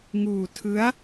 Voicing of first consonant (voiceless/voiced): voiced